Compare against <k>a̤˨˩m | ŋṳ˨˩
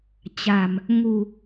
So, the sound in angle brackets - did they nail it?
no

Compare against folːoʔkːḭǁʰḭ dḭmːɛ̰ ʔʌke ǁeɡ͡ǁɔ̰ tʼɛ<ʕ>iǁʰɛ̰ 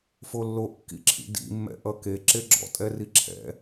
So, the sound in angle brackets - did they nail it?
no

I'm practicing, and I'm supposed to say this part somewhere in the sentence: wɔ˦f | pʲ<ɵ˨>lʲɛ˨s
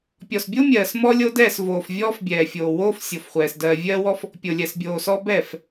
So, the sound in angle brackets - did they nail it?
no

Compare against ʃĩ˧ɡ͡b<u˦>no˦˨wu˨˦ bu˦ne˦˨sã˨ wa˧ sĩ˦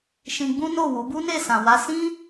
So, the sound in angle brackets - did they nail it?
no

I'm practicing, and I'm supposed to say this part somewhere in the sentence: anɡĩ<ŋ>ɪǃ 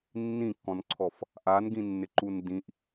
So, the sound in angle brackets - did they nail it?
no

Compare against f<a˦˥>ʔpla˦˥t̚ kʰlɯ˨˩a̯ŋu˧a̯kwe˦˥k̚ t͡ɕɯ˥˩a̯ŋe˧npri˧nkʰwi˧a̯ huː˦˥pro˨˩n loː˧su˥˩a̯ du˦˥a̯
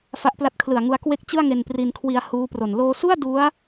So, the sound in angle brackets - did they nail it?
yes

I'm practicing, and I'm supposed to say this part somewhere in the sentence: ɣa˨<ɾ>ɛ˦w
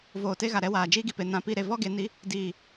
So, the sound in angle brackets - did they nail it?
yes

